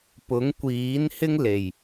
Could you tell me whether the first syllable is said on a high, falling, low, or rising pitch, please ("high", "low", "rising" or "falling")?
rising